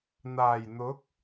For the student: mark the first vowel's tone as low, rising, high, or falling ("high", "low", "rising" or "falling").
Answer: low